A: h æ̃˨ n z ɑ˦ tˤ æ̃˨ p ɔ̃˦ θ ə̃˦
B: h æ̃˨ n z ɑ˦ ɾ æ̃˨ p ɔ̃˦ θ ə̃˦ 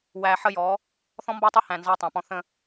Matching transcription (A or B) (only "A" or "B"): A